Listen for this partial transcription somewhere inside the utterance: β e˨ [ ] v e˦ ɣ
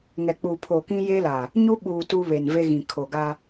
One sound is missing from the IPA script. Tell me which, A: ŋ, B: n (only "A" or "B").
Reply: B